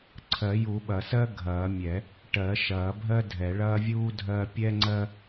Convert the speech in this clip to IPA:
ǀʰ ɜ˨˩˦ j u˨˩˦ ɓ ɐ˨˩˦ s ɜ˥ ɡʱ ɐː˨˩˦ mʲ ɛ˨˩˦ | ʈ ɜ˨˩˦ ʃ ɐː˨˩˦ bʱ ɜ˥ dʱ ɛ˨˩˦ ɭ ɐː˥ vʲ uː˥ dʱ ɜ˥ pʲ ɛ˥ ŋ͡ǀ ɜ˥

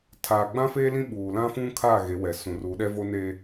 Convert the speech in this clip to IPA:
tʰ aː˨ ɡ͡b ã˦ f eː˦ l ĩ˦ ɓ uː˨ l ã˦ f ũ˦ kʰ a˦˨ ɣ e˨˦ w ɛ˨ s ũ˨ r uː˨˦ ɗ ɛ˦ v o˦ n e˦

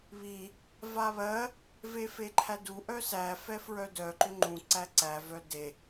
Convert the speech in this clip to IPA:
β i | v a β ɜ | v e f e ǃʰ æ d u ʔ œ s æ f ɛ f ɹ œ d œ ǃ ʏ ŋ͡ǃ ũ ǀ æ ǀ æ v œ d e

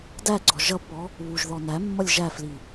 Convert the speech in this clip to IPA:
d æ ɡ͡ǀ ɔ ʒ ʌ pː ɔ | β u ʒ ð ɔ n æ mː ʌ lʲ ʒ æ f l i

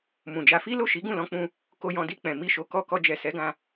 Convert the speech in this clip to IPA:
m ũ˨ d͡ʒ a˧ f i˦ l o˦˨ ʃ i˨˦ ɡ ũ˦˨ l ɔ̃˨˦ k͡p ũ˧ | k o˧ j ɔ̃˧ d i˧ k͡p ɛ̃˨ m i˨ ʃ o˨˦ k ɔ˧ k ɔ˧ d͡ʒ ɛ˨ s ɛ˨˦ ɡ ã˧

